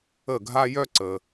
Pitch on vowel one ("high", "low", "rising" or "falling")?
falling